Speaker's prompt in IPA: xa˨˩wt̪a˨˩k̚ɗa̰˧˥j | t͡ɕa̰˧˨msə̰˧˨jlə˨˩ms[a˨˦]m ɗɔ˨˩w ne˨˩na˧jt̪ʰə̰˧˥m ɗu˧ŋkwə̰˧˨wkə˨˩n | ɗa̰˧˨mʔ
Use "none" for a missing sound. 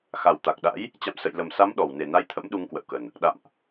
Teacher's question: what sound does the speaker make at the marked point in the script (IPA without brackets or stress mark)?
a˨˦